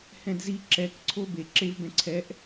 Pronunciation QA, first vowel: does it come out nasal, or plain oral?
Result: nasal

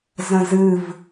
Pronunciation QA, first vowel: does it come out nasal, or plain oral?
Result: nasal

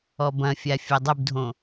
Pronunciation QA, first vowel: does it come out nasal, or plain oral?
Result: oral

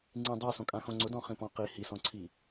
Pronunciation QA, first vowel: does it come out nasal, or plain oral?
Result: nasal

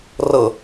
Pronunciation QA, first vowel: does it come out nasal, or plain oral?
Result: oral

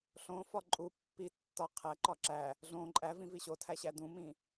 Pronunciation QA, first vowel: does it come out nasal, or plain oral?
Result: nasal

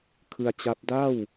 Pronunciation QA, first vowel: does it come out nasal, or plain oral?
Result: oral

